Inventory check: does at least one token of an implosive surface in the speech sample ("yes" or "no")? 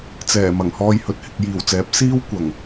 no